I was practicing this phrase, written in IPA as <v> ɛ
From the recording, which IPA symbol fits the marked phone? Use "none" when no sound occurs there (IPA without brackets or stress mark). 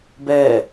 b